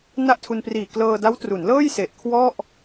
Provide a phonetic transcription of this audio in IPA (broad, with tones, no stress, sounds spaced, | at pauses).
n a˥˩ ʔ tʰ u˧ n p r iː˨˩ k l ɤː˧ d a˦˥ w t r u˩˦ n l ɤː˥˩ j s e˨˩ ʔ kʰ w ɔ˥˩ ʔ